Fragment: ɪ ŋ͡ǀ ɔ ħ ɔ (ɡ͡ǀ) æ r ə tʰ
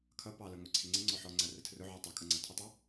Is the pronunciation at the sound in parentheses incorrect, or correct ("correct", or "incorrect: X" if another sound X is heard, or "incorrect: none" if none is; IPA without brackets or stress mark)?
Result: incorrect: ŋ͡ǀ